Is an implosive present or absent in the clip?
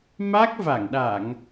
present